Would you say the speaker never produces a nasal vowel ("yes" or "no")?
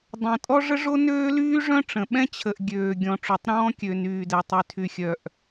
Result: no